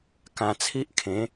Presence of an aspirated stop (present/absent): present